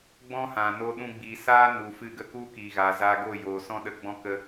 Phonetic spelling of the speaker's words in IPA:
ɡ͡b ɔ̃˦ h ã˨ n o˧ ɗ ũ˧ ɡ͡b iː˨ s aː˦ n u˨ f ɨ˧ ɡ ə˧ k u˦ k iː˨ ɣ aː˨ z aː˧ ɡ o˦˨ j oː˨ s ɔ̃˦ ɗ ə˧ ɡ͡b ɔ̃˦ k ə˦

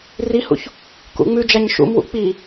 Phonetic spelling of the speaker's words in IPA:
r i h ṵ ç | k ṵ ŋ͡m ʉ d͡ʒ a ɲ ʃ ṵ m w ṵ k͡p i

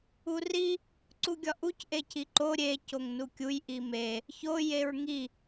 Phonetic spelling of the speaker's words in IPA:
u r i | ǀ u ɡʲ ɒ ʔ u c ʔ e c i ǃ o ɾʲ e c o ŋ n u kʲ u j ʔ i m e | ç o j e ɹ ŋ i

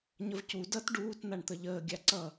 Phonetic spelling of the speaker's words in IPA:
ɲ ə v c u d ʌ t ɖ uː t n̪ a ɳ t̪ ə ʎ əː ɡʲ a ǀ ʌ

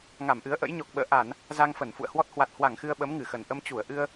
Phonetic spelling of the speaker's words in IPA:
ŋ a˧˩ m ʔ ɨ˨˦ ə̯ ʔ ə̰˧˥ j ɲ ɔ˨˩ k̚ ɓ ə̰ː˧˨ ʔ a˧˩˨ n | z a˧ ŋ f ə˧˩ n f ṵ˧˨ ə̯ h w ɔ˦˥ t̚ h w a˨˩ t̚ h w a˧˩ ŋ x ɨ˧ ə̯ ɓ ə˨˦ m ŋ ɨ˧˩ x ə˨˩ n ʔ ə˧ m t͡ɕ u˧˩ ə̯ ʔ ɨ˧ ə̯

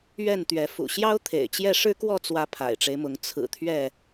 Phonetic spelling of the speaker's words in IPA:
ɥ ɛ˥˨ n t̪ ɥ ɛ˨˦ f ṵ˨˩ ɕ j ɑ˦ ʊ̯ t̪ʰ ḛ˨˩ ɪ̯ t͡ɕ j ɛ˥˨ ʂ ɻ̩˦ k w ɔ˥˨ t͡s w ä˨˦ pʰ a̰˨˩ ɪ̯ ʈ͡ʂ e˦ ɪ̯ m ʊ˨˦ ŋ t͡sʰ ɹ̩˨˩ t̪ʰ ɥ ɛ˥˨

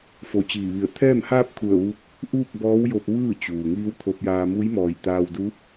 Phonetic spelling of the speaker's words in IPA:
f o˧˩ t͡ɕ iː˧˩ ʋ i˧˩ ə̯ t̪ʰ ɛː˥˨ m h aː˥˨ p̚ kʰ u˧˩ ə̯ ʋ u˧˥ k̚ | ʔ uː˥˨ k̚ b ɔː˧˥ w j o˧ p̚ ʋ ɯː˥˨ t͡ɕ uː˩ ŋ iː˧˥ w t̪ʰ o˧ p̚ j aː˧ m u˧˥ j m ɔː˧˩ j t̪ aː˧ w d u˧˥

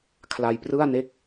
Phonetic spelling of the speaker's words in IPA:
kʰ l a˧ j p r ɯ˥˩ a̯ n e˥˩ k̚

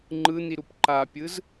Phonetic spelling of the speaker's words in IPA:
ŋ͡ǃ ɯ n̪ i ɾ u p ǃ a pʲ ɯ z

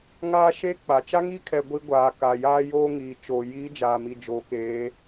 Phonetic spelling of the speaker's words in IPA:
ŋ aː˦ ʃ e˦ k͡p a˨ t͡ʃ a˦ ŋ i˦ kʰ ɛ˨ ɡʷ i˦ ɡʷ aː˨ k a˨ j aː˦ j oː˦ ŋ iː˨ t͡ʃ oː˨ j i˨˦ d͡ʒ aː˨ m i˨ d͡ʒ o˨˦ k eː˨˦

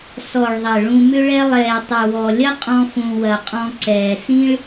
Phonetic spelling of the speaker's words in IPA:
s ɔ˩ ɭ ðˤ ɐ˩ ɭ ũ˨ m ʏ˦ ɭ ɛ˦ lˠ ɛː˩ tˤ ʏ˩ w ɔ˩ lʲ ɐ˥ qʼ ɔ̃˦ f ũ˨ w ɐ˨ qʼ ɔ̃˦ ǀ ɛː˩ s ĩ˥ ɭ

